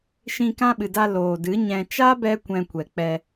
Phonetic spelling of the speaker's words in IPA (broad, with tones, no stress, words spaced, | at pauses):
ʃĩ˧kã˦ɓɨ˨da˧ loː˨dɨ˨˦ɲɛ̃˧ t͡ʃa˦bɛ˧kʷɛ̃˨ kʷɛ˨k͡pɛ˧